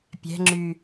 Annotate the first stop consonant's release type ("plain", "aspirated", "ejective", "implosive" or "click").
plain